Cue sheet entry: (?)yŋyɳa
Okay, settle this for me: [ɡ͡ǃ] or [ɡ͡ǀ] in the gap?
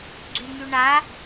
ɡ͡ǀ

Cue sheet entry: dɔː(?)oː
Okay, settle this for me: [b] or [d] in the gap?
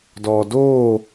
d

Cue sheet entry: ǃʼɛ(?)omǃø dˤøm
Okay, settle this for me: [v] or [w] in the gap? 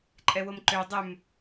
w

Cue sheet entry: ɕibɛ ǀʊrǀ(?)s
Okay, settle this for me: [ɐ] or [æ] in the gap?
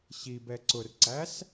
æ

